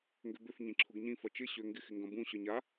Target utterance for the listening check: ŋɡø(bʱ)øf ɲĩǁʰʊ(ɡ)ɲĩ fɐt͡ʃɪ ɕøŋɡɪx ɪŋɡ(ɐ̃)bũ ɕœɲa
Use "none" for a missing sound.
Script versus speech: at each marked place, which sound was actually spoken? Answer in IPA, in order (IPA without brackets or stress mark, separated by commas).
b, ɡ, ɐ̃